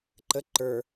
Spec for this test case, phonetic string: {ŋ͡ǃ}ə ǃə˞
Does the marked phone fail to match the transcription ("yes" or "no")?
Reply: yes